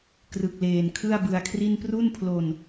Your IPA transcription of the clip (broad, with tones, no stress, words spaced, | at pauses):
krɯ˨˩k̚leː˨˩n kʰɯ˥˩a̯bɯ˧a̯ kʰri˥˩n pru˥˩npʰlo˧n